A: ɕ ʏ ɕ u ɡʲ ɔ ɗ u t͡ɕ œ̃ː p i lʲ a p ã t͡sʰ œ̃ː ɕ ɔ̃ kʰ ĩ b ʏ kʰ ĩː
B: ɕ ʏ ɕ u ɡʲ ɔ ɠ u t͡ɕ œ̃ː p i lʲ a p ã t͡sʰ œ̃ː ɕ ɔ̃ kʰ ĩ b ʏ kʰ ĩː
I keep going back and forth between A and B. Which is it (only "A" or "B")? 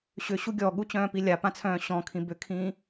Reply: B